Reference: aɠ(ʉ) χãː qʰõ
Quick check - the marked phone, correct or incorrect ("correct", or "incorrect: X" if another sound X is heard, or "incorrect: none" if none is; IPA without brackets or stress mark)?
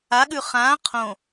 correct